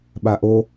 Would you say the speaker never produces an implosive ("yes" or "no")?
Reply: no